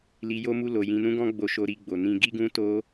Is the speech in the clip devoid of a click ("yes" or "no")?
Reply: yes